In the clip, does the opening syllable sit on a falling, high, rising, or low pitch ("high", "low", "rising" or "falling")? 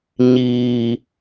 low